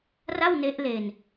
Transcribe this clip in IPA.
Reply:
r a˥˩ w n e˦˥ ʔ l e˧ n

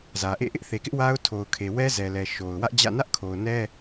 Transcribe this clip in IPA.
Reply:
z ä˨ ʔ ḛ˦˨ ʔ ɪ˦ ʔ θ e˨ k ɪ˦ ʔ w a˦ ʊ̯ tʰ o˨ ʊ̯ kʰ e˨ w ɛ˦ z ɛ˨ l ɛ˨ ʃ o˨ ʊ̯ w ä˦ ʔ d͡ʑ ä̰˦˨ n ä˦ ʔ kʰ o˨ ʊ̯ n ɛ˦

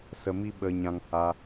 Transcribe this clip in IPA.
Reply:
s ə˧ m i˦ ɓ ə˧ ɲ ã˧ ŋ h a˧

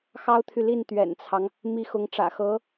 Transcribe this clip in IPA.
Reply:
x ɑ˥ ʊ̯ t̪ʰ y˨ l i˥˩ n t̪ ɥ ɛ̰˨˩ n t͡sʰ ɑ˦ ŋ | m i˥ x ʊ˧˥ ŋ ʈ͡ʂ ä̰˨˩ x ɤ˧˥

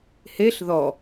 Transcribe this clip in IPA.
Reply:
h e ɬ ð ɔ

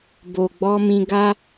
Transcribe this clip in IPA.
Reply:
b o˨ ɡ͡b ɔ˧ m ĩ˧ ɡ a˦

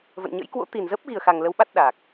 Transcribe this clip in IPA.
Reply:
v ə̰˧˨ n ɲ ə̰˧˥ j k w o̰˧˥ t̪ i˨˩ n z ə˦˥ p̚ ɣ i˨˩ ə̯ x a˨˩ ŋ l ə˨˦ w ɓ a˦˥ t̚ ɗ a˨˩ k̚

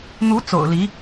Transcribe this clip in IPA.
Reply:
n̪ u˧˥ t͡s o̰˨˩ ʊ̯ l i˧˥

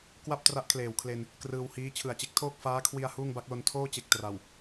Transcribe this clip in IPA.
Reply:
k w a˥˩ p̚ t r a˦˥ ʔ kʰ l eː˨˩ w kʰ l e˧ n | k r ɯː˧ w h iː˦˥ t͡ɕʰ ɯ˨˩ a̯ t͡ɕ e˦˥ k̚ tʰ oː˥˩ k̚ f aː˦˥ kʰ w i˧ a̯ h uː˥˩ ŋ b a˦˥ k̚ l o˧ n tʰ oː˥˩ t͡ɕ e˨˩ k̚ t r a˨˩ w

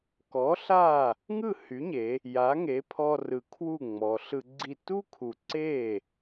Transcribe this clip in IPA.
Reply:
k ɔ˩˥ ɬ a˥˩ | ŋ ɯ˥˩ h y˩˥ ɲ e˩˧ | j a˩˥ ŋ e˩˥ pʰ ɔ˧ r ɯ˨˩ kʰ w u˥˩ ŋ͡m ɔ˩˧ ɬ ɯ˧ ɡ͡ǀ i˥˩ t u˥ kʰ u˨˩ ǀ e˥˩

